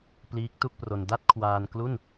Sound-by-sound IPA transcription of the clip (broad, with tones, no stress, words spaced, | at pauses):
pliː˦˥k̚tu˥˩k̚pro˧n da˥˩t̚kʰwaː˧nklu˥˩n